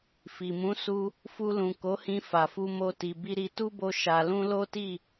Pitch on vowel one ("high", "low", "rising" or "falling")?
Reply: low